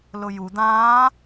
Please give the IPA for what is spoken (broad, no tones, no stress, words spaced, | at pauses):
lʊju d̪ãː